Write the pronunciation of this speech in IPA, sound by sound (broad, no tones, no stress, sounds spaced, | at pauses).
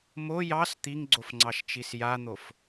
m o j ɑ s t̪ i ŋ ɡ͡ǀ o f ŋ͡ǀ ɑ ʃ t͡ʃ i s j a n̪ o f